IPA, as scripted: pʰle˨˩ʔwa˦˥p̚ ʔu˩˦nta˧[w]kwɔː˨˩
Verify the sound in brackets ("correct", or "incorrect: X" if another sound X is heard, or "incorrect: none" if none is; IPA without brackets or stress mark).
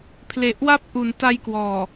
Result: incorrect: j